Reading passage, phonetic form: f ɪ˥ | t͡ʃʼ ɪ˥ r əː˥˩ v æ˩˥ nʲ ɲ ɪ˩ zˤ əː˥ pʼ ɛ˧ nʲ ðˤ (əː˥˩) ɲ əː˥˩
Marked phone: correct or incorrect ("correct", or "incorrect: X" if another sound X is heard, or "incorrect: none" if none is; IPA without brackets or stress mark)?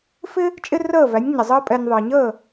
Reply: incorrect: əː˩